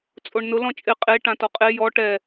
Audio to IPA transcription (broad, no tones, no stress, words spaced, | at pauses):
t͡sʼoɳnʊ lɔ̃t͡ʃʼɪ qʼe ʈãtɔqʼe jɔ ʈɛ